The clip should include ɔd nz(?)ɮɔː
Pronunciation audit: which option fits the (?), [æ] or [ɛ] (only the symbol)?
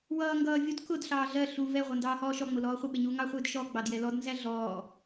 æ